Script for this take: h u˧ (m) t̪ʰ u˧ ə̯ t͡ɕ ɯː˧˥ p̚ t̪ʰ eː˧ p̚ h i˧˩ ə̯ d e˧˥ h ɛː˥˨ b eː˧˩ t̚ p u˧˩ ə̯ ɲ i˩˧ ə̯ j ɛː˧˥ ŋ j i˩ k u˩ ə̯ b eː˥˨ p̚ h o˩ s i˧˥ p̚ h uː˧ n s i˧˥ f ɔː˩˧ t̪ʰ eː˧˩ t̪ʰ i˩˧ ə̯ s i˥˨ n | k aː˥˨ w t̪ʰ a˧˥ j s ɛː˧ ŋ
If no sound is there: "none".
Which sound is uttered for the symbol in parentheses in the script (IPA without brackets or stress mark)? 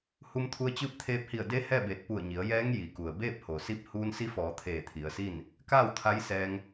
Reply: m